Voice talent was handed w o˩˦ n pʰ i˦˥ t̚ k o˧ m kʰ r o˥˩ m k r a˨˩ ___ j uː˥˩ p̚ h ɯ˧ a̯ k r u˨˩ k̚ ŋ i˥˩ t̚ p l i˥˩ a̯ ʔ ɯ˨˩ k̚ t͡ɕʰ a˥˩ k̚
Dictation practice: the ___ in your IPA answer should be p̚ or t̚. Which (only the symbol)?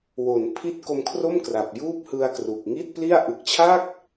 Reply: p̚